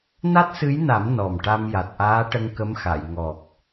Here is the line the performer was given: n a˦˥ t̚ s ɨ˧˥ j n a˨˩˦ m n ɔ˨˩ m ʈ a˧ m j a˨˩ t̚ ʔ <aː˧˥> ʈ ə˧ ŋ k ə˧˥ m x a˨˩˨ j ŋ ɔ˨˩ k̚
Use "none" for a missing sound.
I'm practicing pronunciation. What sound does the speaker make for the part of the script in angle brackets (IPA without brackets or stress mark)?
aː˧˥